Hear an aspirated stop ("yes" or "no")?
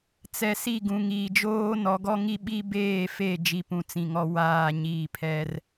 yes